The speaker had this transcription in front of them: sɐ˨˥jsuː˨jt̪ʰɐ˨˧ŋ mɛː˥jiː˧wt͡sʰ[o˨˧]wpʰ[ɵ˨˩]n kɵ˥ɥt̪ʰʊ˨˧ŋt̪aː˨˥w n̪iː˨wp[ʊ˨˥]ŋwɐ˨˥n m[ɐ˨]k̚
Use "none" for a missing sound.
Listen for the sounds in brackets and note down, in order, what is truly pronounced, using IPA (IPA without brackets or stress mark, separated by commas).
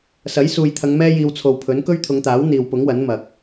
o˨, ɵ˨˥, ʊ˨˥, ɐ˨